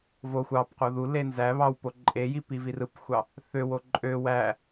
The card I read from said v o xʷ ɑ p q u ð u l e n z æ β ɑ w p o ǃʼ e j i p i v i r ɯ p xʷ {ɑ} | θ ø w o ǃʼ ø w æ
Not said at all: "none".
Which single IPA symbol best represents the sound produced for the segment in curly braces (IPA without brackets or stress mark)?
ɑ